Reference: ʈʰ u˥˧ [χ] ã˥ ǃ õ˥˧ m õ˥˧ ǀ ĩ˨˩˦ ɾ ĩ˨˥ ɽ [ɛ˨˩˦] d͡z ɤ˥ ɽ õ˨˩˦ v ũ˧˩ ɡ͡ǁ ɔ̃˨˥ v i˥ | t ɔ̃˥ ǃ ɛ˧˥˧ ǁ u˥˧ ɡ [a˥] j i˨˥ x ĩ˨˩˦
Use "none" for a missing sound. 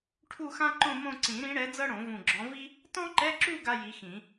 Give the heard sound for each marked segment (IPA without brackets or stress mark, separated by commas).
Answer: x, ɛ˨˥, a˥